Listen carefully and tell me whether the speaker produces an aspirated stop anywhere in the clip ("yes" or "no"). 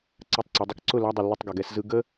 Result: no